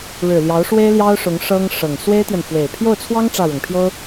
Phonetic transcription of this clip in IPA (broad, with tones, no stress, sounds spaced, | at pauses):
ɻ ɻ̩˨˩ l j ɑ˧˥ ʊ̯ ʂ w e˥ ɪ̯ l j ɑ˥ ʊ̯ ʂ ʊ˧˥ ŋ ʂ ɤ˥ ŋ ʂ ɤ˨˩ ŋ s w e˥ ɪ̯ t̪ j ɛ˨ n f w e˨˩ ɪ̯ pʰ j o˥˩ ʊ̯ t͡sʰ w ɑ˥ ŋ ʈ͡ʂ ä˥˩ ɻ ʊ˨˩ ŋ pʰ j o˥ ʊ̯